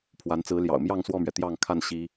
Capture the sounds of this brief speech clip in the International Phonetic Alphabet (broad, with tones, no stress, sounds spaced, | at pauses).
pʰ w a˨˦ n t͡s ɹ̩˨˦ l j ɑ̰˨˩ ʊ̯ m j ɑ˥˨ ŋ s w ɔ˥˨ m ɥ ɛ˩ t̪ j ɑ˥˨ ŋ kʰ a˥˨ n ɕ i˦